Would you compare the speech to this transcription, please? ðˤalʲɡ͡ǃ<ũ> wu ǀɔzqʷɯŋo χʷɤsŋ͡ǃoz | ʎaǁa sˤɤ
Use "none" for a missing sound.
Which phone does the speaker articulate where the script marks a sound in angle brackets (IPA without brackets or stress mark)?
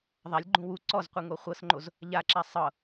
ũ